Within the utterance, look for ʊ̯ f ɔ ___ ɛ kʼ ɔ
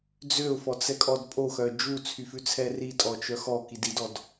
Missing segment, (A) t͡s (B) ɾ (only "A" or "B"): A